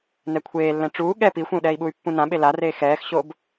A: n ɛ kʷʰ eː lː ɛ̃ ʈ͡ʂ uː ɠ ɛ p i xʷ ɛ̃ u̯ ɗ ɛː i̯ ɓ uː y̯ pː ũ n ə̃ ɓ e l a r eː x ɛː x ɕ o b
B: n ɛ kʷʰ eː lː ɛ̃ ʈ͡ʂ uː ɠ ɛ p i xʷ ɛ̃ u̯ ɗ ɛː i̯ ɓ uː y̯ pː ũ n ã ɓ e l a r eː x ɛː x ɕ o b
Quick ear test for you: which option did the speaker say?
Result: B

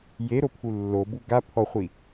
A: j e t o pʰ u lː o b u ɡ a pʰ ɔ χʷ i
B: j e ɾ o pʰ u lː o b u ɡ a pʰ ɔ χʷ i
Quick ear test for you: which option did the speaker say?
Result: B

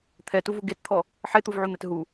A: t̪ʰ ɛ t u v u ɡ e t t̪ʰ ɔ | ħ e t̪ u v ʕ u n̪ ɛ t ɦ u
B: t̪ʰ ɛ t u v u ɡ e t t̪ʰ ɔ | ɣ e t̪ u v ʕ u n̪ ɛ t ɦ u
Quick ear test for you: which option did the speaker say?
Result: A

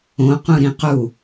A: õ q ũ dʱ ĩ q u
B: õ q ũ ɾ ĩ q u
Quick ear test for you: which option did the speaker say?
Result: B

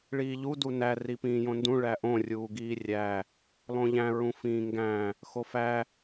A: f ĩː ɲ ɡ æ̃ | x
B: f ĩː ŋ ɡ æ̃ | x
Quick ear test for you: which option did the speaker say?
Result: B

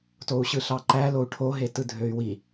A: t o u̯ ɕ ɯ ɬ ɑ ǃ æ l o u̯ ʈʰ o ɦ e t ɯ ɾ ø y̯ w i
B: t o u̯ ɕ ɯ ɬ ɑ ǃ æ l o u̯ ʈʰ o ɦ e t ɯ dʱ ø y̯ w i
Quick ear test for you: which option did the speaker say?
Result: B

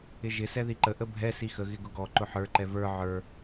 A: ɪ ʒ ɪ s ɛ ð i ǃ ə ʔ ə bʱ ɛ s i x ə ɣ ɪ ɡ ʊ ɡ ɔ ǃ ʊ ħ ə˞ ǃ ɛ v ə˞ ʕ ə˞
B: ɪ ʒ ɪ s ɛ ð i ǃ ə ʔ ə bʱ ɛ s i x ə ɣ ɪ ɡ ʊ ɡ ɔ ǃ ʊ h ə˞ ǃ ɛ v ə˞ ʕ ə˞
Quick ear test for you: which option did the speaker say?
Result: A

